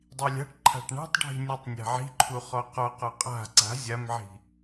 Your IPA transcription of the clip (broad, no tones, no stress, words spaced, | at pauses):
dˤilʲa̤ʈǃʰa̤ʈ ɳa̤tˤɖʱi̤ nʲutˤnʲa̤ʕi̤ǃʰu χɔqɔqɔ qʼa̤ ǀa̤ zʲamʕi̤